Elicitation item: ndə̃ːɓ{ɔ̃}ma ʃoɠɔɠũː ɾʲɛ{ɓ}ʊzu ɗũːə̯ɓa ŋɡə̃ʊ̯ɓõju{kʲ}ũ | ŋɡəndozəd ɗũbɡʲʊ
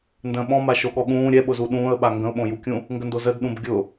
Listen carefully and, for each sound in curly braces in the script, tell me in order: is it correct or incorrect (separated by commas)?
correct, correct, correct